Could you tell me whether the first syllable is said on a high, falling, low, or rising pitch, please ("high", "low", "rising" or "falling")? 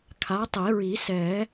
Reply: rising